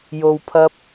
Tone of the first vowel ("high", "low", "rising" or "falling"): low